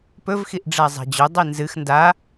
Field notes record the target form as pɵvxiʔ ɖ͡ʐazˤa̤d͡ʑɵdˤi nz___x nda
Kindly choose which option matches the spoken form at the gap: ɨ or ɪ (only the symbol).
ɨ